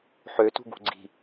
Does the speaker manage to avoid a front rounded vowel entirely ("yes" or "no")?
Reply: no